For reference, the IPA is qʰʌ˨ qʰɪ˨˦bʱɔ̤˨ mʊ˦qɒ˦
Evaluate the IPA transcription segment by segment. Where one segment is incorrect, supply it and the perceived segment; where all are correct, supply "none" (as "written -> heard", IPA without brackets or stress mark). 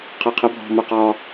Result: none